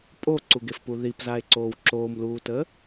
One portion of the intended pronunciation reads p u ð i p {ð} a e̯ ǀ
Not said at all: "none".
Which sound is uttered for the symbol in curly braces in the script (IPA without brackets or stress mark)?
z